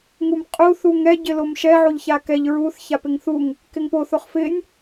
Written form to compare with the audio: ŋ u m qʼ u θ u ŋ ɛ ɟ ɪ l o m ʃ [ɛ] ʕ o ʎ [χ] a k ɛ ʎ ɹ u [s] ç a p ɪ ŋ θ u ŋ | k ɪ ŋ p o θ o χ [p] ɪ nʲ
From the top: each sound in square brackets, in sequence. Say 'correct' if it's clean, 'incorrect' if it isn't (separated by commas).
correct, incorrect, incorrect, incorrect